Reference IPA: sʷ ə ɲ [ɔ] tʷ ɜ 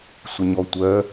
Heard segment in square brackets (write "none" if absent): ɔ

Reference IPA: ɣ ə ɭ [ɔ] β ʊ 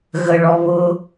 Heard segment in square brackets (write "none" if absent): ɔ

